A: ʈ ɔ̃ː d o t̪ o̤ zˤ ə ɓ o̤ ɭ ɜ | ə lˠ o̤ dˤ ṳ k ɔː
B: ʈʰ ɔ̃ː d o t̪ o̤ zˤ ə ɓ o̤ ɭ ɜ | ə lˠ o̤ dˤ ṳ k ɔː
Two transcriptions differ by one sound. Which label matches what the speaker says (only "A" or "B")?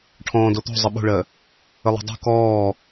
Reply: B